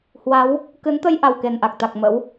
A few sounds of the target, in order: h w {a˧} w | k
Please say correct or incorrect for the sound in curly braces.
incorrect